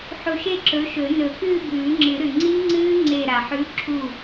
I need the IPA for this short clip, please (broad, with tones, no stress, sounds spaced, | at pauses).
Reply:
ħ u˧˩ ʃ e˥˧ ǁ ɵ˨˥ ʃ ɵ˨˩˦ n ɵ˨˩˦ k ɨː˥˧ b ʉː˨˩˦ ŋ͡ǁ ɨ˨˩˦ ɾ ʉ˩ ŋ͡ǀ i˦˥ ŋ͡ǀ ɨː˦˥ ŋ͡ǀ e˧˩ ɾ a˩ ħ ʉ˨˥ ǁʰ u˧˩